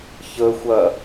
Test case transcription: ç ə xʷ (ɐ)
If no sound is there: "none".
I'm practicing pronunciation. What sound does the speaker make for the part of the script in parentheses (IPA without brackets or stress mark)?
ɐ